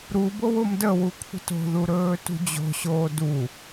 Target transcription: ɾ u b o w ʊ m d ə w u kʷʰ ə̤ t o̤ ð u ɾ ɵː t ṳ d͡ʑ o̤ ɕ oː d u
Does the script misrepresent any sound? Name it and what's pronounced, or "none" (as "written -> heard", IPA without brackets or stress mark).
none